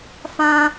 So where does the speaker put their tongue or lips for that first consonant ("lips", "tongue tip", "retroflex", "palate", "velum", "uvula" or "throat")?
lips